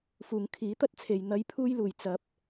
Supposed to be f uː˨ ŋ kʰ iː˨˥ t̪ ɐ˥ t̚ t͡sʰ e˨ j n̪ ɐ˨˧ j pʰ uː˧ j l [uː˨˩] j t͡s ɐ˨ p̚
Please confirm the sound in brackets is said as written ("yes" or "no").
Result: yes